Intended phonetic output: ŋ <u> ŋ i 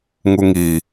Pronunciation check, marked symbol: correct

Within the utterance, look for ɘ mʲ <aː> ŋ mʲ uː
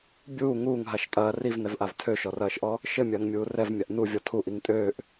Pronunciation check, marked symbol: incorrect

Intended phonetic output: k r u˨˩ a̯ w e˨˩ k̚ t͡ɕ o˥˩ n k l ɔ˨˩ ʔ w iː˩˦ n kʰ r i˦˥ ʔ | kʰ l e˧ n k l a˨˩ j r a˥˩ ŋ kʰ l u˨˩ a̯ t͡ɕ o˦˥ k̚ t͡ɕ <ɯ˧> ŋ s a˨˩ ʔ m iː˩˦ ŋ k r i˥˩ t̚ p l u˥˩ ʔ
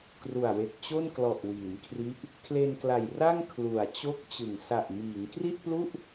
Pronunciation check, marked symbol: incorrect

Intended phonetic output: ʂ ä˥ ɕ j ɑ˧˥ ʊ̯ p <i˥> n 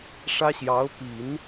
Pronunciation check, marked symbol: incorrect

